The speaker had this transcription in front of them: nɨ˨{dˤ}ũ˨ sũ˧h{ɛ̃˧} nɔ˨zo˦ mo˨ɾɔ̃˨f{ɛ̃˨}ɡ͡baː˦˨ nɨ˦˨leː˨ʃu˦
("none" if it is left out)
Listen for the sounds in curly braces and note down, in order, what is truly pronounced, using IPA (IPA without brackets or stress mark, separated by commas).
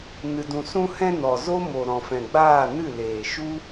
d, ɛ̃˧, ɛ̃˨